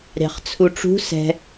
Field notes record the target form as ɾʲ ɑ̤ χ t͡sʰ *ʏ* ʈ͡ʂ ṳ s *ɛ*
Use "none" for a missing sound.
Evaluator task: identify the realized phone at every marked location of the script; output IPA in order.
u, ɛ̤

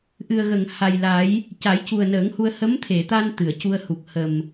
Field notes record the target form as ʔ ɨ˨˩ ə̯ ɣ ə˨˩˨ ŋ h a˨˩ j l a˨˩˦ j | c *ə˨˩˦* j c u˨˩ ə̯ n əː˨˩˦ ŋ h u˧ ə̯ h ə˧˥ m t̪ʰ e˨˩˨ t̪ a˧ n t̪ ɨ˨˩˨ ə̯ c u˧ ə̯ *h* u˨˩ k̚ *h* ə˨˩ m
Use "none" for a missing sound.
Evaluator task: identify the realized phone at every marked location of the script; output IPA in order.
a˨˩˦, h, h

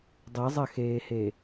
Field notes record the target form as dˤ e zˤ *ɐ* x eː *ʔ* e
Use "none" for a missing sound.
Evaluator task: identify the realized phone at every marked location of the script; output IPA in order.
ɐ, h

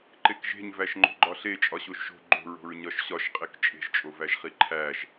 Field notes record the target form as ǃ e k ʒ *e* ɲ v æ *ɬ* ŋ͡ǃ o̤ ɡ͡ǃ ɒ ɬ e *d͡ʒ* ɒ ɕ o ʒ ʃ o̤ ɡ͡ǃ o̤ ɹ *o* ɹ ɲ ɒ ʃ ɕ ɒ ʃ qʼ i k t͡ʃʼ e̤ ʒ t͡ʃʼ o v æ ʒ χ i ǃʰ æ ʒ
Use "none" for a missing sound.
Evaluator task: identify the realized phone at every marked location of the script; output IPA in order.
e̤, ʃ, t͡ʃʼ, o̤

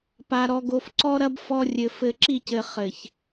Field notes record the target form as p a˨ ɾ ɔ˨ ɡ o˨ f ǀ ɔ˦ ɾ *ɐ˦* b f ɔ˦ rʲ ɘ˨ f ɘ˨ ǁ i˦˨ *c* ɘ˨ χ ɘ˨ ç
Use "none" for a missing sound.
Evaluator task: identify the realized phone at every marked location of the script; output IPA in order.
ɐ˦, c

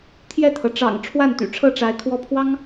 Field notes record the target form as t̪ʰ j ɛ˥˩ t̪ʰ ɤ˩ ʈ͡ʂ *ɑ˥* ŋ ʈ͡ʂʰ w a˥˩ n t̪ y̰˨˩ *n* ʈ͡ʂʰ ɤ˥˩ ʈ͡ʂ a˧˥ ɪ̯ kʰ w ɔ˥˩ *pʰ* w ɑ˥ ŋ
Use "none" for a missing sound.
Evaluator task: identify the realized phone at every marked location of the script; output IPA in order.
ɑ̰˨˩, none, pʰ

